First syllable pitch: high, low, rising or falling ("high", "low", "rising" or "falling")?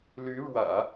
rising